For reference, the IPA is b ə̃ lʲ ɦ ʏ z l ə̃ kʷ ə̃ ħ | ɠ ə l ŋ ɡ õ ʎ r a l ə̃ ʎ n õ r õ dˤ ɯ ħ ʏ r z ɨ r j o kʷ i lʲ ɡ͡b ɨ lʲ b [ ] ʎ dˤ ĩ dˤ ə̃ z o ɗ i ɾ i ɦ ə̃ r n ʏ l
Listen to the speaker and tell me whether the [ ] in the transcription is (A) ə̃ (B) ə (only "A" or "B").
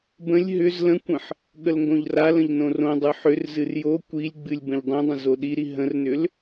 A